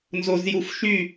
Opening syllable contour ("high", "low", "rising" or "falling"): low